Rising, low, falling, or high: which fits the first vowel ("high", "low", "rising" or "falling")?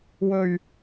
low